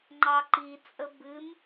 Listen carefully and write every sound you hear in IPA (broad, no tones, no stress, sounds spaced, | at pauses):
ŋ͡ǃ ɑ ǃ i t͡sʼ ə b ɨ m